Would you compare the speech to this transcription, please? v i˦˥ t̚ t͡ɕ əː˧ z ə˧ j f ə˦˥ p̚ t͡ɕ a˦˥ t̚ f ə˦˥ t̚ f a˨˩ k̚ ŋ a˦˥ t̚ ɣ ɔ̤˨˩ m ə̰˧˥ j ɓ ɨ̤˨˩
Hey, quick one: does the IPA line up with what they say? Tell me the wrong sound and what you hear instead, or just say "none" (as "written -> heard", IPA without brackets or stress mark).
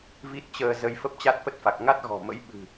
none